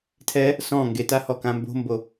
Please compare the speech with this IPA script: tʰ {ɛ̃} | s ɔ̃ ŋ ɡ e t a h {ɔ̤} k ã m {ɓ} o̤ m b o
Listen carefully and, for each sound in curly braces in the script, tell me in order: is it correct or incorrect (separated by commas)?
incorrect, incorrect, incorrect